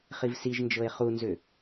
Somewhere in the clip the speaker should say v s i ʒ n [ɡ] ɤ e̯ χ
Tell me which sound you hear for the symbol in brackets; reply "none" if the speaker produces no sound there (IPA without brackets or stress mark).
d͡ʒ